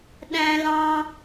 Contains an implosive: yes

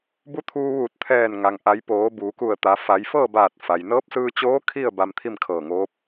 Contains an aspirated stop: yes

